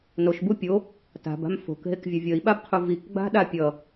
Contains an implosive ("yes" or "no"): yes